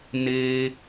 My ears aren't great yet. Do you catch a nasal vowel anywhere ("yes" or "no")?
no